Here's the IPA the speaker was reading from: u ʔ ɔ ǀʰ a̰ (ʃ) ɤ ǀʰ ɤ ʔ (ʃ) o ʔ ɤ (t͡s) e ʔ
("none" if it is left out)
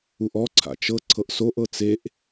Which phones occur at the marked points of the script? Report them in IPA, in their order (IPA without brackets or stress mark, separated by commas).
t͡ʃ, s, t͡s